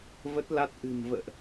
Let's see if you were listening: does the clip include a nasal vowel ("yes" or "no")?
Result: no